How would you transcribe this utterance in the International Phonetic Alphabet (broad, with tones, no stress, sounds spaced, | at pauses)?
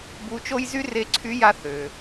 b u˧˥ t͡ʃ o˥ j z y˥ r e˧˥ ǀʰ y˧˥ j a˧ θ ø˩